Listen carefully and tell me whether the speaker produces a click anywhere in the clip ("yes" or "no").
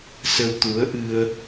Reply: no